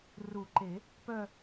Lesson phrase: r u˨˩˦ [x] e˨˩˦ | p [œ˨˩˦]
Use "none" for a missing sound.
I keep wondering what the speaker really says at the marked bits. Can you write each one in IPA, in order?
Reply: ǃ, œ˥˧

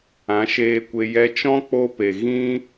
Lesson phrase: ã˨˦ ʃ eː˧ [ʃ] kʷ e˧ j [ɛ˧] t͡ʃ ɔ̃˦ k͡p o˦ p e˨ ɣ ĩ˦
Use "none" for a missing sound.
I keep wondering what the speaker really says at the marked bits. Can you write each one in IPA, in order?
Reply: none, ɛ˧

